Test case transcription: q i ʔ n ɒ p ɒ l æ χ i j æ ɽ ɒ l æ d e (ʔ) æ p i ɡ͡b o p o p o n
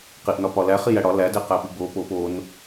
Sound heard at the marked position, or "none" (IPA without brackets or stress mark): q